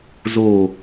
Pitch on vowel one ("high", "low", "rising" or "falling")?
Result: low